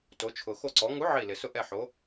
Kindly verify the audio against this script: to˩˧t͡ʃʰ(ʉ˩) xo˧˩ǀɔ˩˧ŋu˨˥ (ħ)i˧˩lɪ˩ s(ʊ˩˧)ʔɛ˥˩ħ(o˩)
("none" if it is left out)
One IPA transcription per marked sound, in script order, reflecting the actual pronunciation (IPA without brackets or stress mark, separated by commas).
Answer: ʊ˩, ʕ, ʊ˥˩, o˨˥